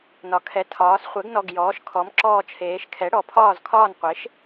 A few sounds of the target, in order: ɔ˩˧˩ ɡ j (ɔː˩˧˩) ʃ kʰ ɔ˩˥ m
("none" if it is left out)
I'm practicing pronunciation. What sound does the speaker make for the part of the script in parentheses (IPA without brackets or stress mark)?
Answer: ɔː˩˥